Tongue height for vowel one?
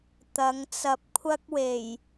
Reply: low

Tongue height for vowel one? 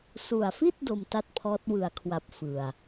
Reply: high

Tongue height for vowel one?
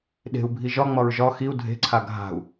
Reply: mid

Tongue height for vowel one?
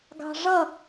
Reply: low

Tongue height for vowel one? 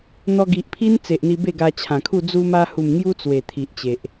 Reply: mid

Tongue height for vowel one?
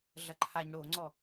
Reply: low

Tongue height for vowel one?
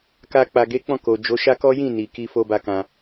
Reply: low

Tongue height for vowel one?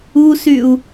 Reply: high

